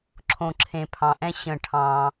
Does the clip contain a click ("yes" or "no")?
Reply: yes